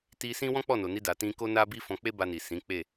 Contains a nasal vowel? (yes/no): yes